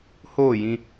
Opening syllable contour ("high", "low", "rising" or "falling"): falling